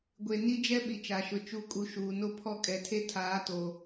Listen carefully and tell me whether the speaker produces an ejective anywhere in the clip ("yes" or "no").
yes